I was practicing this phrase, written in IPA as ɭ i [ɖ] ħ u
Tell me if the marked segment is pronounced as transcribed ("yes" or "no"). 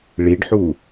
yes